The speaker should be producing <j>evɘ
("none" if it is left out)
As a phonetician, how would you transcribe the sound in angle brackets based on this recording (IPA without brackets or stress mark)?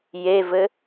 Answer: j